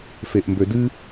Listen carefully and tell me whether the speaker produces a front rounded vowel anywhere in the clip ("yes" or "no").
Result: yes